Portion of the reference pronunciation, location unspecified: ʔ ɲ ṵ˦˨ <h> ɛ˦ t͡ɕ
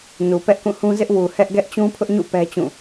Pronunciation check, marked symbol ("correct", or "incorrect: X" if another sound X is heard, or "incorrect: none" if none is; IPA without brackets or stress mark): incorrect: p